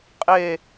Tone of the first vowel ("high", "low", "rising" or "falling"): falling